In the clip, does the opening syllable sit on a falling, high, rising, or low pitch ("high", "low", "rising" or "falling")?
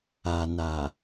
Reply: low